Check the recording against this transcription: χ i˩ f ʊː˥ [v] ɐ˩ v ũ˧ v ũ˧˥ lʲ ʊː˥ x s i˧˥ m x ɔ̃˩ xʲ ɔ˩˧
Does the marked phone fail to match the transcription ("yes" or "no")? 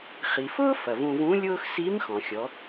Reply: yes